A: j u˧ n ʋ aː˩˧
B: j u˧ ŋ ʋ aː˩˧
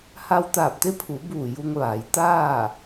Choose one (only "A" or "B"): B